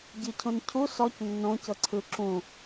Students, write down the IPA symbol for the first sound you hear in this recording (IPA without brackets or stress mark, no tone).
ɟ